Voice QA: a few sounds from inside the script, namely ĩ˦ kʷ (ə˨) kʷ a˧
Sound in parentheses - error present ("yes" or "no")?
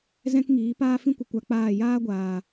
no